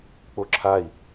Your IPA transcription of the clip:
k͡p o ǁʰ a i̯

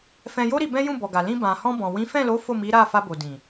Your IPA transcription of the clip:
f ɛ̃˧ j o˦ ɾ i˧ b ɛ̃˦ j ũ˦˨ b ɔ˨ ɡ a˨ l ĩ˧ b ã˨ h ɔ̃˧ b ɔ̃˨ w ĩ˨˦ f ɛ̃˦˨ l o˨˦ f o˦˨ m i˨˦ ɾ a˦˨ f a˧ b o˨ d ĩ˨

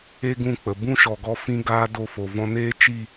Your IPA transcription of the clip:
e˦ ɡ ũ˦˨ k͡p ə˨ b ũ˦ ʃ ɔ˨ ɡ ɔ˧ f ĩ˧ ɡ aː˧ d o˦˨ f o˨ v ɔ̃˦ n eː˦ t͡ʃ i˦˨

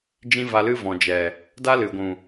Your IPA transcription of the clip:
d͡ʒ ĩ˦ v a˧ l ɨ˦ v ɔ̃˨ d͡ʒ ɛ˨ | d a˦ l ɨ˨ ɡʷ ũ˨

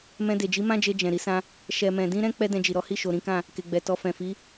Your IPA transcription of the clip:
m ɛ̃˧ d e˨ d͡ʒ i˨˦ m ã˦ d͡ʒ e˧ d͡ʒ ɛ̃˨ ɾ i˨˦ s ã˧ | ʃ ɛ˨ m ɛ̃˨ d ĩ˧ ɾ ɛ̃˧ k͡p ɛ˦ d ɛ̃˧ d͡ʒ i˨ ɾ ɔ˨˦ h i˦˨ ʃ o˨ ɾ ĩ˨˦ k ã˦˨ | k e˧ ɡ͡b ɛ˧ t ɔ˧ f ɛ̃˨ f i˨˦

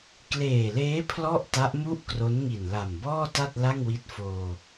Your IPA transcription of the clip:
k l eː˨˩ l eː˦˥ pʰ l ɔ˥˩ ʔ t a˦˥ ʔ m u˥˩ ʔ k r o˦˥ n ŋ i˨˩ n l a˨˩ m b ɔː˥˩ t a˥˩ t̚ l a˥˩ ŋ w i˦˥ t̚ f oː˧

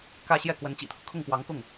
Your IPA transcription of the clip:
k ä˥˧ ɕ j ɛ˥˩ k w ə˧˥ n t͡ɕ ḭ˨˩ t̪ʰ ɤ˦ kʰ ʊ˥˩ ŋ p w ɑ˧˥ ŋ k ʊ˥˩ ŋ

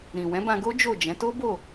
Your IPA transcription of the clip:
ɾ ĩ˨ w ɛ̃˨˦ b ã˧ ɡ o˦ d͡ʒ o˦˨ d͡ʒ ɛ̃˨˦ t o˦ b o˦˨

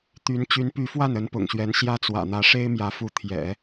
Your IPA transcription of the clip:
t̪ y˧˥ n t͡ɕ y˧˥ n p y˧˥ f w a˥˩ n ə˧˥ n p ʊ̰˨˩ ŋ ɕ ɥ ɛ˧˥ n ɕ j ä˥˩ t͡s w ä̰˨˩ n̪ ä˧˥ ʂ e˥ ɪ̯ m j ä˧˥ f u˧˥ t̪ʰ j ɛ̰˨˩˦

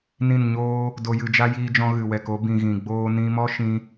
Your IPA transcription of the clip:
n ĩ˦˨ n ɲ oː˦ | d o˧ j ɨ˧ d͡ʒ a˦ j iː˧ d͡ʒ ɔ̃˧ ɣ ɨ˨ w ɛ˨ k o˧ b ĩ˨ ɣ ĩ˨ ɡ͡b oː˦ n ĩ˧ m ɔ˦ ʃ ĩ˧

